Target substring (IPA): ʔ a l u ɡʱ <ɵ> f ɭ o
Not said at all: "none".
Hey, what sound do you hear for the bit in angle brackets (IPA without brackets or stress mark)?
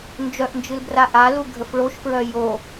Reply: ə